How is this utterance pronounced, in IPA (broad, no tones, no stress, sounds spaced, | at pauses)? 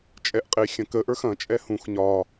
t͡ʃʼ ɛ ʔ qʼ e xʲ ɐ̃ k ə ʔ ə˞ x ɐ̃ t͡ʃʼ ɛ h ũ x ɲ ɒ